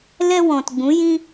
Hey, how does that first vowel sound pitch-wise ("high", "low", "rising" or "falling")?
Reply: high